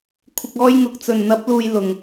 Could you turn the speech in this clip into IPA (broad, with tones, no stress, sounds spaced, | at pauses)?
kʷʰ ɪ˨ k̚ ɔː˧ j ŋ ʊ˨ k̚ t͡s ɵ˨˩ n n̪ ɐ˨˥ p̚ l uː˨ j l ʊ˨˩ ŋ